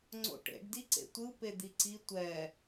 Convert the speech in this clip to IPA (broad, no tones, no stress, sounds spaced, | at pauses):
ŋ͡ǀ o̰ ʈ ḛ ɖ d i ǀ ḛ tʷ ɯ p e d̪ i ǀ i tʷ ɛ